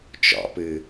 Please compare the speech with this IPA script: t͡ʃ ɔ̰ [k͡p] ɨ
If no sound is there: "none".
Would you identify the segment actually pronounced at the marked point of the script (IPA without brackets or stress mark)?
p